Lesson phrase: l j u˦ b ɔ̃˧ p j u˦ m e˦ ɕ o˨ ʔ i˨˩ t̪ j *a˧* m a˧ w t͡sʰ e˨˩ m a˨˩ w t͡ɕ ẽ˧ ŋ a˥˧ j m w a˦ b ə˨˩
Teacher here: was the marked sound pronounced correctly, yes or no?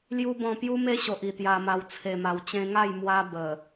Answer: yes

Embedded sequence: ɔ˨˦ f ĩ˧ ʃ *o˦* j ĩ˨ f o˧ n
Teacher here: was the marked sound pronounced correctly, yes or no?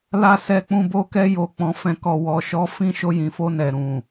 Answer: no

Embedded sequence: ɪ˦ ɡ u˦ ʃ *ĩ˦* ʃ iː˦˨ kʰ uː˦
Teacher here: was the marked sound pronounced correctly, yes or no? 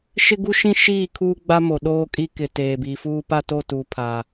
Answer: yes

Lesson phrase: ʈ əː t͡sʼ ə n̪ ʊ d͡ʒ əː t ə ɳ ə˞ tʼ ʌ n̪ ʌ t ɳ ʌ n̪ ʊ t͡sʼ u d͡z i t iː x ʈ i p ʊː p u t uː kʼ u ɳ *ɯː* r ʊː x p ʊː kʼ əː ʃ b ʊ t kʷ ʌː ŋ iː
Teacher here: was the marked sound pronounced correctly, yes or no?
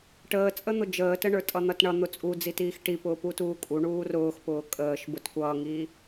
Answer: no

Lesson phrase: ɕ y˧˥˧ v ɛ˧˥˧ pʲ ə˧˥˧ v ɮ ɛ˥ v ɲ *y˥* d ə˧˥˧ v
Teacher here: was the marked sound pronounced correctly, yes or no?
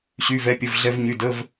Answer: no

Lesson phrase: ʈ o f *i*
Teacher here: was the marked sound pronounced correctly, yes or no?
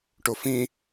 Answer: no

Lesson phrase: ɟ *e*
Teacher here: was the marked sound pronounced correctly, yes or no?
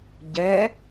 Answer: no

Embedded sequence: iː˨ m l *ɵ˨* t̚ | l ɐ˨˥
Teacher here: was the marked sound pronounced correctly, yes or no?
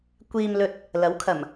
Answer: yes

